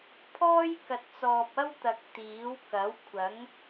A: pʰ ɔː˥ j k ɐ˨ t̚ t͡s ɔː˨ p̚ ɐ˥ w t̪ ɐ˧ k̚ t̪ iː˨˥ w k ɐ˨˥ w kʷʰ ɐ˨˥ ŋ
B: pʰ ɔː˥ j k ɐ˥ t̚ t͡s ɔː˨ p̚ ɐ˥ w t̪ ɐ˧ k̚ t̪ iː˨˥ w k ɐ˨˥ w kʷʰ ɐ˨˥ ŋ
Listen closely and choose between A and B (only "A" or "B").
A